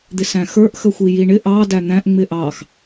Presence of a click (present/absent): absent